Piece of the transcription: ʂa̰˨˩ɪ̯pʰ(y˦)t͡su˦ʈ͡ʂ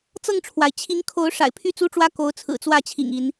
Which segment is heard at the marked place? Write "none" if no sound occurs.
y˥˨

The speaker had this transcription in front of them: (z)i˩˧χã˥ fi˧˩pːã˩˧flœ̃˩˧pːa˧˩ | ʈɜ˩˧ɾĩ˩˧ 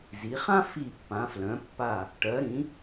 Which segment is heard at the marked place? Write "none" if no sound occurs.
z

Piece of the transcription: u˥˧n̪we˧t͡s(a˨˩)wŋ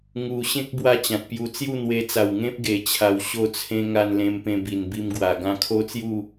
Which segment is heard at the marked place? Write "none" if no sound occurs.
a˨˩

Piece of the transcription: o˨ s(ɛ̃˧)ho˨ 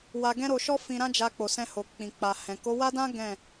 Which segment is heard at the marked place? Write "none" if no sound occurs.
ɛ̃˧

